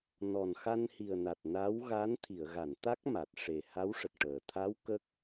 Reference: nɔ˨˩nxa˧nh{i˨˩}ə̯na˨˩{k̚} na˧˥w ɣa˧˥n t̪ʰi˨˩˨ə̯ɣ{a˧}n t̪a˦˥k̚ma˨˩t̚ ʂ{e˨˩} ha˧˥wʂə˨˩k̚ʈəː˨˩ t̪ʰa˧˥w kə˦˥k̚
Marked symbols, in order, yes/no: yes, no, no, yes

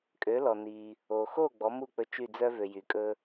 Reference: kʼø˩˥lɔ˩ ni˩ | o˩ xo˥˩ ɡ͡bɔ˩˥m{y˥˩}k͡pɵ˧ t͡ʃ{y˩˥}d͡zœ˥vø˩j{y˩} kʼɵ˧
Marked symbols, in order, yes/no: no, no, yes

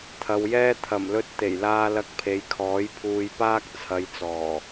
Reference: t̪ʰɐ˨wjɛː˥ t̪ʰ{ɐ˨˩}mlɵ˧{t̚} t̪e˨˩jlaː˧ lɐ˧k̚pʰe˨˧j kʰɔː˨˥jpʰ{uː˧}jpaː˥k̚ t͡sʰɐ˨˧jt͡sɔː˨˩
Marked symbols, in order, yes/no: yes, yes, yes

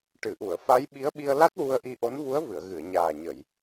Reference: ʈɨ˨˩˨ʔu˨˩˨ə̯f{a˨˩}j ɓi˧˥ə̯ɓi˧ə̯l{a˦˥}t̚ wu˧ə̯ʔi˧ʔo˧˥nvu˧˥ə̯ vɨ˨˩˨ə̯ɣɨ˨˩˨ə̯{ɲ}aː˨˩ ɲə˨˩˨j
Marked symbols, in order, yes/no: no, yes, yes

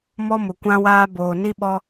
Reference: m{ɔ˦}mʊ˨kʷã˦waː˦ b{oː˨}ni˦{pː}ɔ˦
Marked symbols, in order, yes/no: yes, yes, no

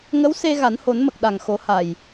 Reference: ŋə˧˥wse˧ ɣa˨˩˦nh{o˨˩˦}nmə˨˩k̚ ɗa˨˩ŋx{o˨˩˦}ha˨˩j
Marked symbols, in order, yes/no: yes, yes

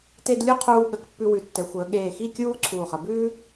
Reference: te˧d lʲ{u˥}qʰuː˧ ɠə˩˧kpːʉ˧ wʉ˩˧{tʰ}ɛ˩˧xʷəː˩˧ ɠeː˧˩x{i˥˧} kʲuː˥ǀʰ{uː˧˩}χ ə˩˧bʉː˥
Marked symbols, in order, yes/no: no, no, yes, yes

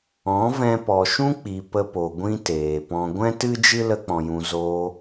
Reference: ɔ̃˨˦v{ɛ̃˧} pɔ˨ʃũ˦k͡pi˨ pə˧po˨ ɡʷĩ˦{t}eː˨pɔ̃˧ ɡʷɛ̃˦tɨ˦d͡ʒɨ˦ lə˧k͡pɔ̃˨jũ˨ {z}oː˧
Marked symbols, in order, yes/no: yes, yes, yes

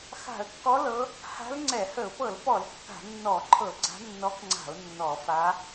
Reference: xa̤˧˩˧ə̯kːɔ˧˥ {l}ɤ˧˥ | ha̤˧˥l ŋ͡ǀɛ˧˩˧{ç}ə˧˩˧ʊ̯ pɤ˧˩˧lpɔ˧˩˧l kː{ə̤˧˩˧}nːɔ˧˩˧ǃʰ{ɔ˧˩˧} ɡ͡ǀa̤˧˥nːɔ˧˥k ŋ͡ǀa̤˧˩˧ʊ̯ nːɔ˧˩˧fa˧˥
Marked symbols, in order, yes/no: yes, no, no, no

